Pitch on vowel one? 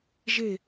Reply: falling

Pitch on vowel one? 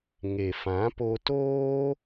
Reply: low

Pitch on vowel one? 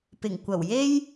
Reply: low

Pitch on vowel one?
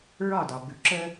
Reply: falling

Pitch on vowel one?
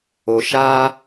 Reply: low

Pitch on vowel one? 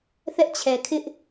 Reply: high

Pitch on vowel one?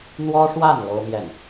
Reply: high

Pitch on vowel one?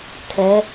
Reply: rising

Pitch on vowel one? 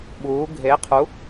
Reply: rising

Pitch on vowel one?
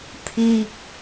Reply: high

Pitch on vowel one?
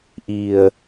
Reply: low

